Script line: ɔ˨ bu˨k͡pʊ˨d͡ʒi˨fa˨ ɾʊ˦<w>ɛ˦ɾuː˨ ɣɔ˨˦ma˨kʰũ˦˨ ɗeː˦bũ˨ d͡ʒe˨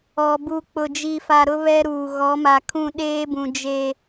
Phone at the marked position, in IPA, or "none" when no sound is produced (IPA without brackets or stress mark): β